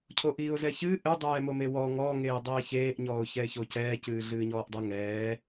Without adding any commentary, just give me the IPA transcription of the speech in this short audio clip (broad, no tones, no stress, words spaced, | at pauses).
cʰoʔiːʊ̯zɛçɨ ʔɘ dˤɛːmomewɔ ŋɔ ŋeːdˤiːçeːʔ ɲɔːʊ̯çɛɪ̯çocɛː cɨːɮɨːɲɔːʔdˤɨ ŋɛː